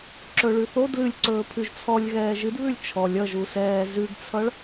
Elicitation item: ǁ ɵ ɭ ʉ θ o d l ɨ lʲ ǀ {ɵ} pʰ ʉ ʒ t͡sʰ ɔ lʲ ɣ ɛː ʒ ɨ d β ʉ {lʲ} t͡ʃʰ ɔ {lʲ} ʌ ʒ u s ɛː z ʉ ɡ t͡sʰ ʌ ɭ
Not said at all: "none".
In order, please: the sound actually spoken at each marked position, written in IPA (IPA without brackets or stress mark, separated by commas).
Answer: ɵː, lʲ, lʲ